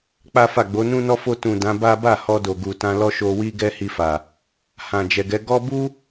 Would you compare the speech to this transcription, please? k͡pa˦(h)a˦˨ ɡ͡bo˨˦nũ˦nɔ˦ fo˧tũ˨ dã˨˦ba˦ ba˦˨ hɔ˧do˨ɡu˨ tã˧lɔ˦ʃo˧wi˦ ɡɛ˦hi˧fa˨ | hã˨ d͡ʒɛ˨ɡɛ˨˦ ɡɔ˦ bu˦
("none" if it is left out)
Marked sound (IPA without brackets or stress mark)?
f